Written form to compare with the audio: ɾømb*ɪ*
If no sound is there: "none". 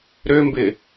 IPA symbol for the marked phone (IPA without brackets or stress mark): ɪ